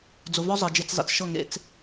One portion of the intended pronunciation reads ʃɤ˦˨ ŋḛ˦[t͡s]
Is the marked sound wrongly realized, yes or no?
no